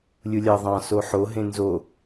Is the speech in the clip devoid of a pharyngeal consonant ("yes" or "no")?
no